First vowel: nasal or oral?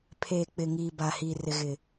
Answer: oral